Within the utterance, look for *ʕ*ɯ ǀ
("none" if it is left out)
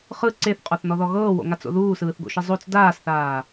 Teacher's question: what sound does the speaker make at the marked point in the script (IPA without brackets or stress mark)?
χ